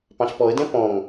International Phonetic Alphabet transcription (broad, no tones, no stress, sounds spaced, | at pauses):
p ɑ̃ ɬ p ɔ ə̯ d ɛ̃ p ɔ̃ ŋ